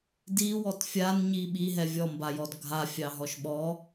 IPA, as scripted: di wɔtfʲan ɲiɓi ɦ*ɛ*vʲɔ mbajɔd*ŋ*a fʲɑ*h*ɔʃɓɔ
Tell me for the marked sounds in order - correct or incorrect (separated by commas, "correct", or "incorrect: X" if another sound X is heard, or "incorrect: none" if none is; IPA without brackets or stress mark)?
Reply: correct, incorrect: ɡʱ, incorrect: ɦ